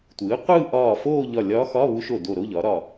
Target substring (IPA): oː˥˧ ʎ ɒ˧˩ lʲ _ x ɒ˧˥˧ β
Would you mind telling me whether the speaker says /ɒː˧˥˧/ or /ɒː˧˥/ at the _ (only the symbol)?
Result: ɒː˧˥